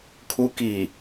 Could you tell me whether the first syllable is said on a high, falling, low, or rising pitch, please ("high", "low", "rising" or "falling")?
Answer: rising